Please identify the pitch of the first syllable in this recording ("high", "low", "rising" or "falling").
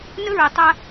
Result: high